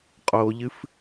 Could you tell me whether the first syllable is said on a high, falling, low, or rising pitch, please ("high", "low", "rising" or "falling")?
low